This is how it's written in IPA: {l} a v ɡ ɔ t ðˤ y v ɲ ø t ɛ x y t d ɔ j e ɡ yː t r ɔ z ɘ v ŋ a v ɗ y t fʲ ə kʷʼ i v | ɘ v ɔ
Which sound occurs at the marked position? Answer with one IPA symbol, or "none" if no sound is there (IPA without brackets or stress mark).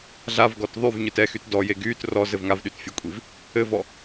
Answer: ɮ